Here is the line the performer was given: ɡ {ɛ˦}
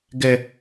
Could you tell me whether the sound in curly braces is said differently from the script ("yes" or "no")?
no